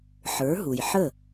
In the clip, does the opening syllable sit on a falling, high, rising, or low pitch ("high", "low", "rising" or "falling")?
rising